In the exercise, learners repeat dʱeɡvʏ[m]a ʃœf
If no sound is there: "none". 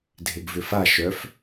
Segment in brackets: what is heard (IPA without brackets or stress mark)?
f